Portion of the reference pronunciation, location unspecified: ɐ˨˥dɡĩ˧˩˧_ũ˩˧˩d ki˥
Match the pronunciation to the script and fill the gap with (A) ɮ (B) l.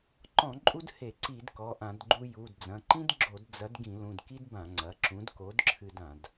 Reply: B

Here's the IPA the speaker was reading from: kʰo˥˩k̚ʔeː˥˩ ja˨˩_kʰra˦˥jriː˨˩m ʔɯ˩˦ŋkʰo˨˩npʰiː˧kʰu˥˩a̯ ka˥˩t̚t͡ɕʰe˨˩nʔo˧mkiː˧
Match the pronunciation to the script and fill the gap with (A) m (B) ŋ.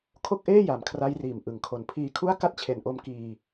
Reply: A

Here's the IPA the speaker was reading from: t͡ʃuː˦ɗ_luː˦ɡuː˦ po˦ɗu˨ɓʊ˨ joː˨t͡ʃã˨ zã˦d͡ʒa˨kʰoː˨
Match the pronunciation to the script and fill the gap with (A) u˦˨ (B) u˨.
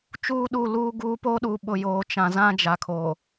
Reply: A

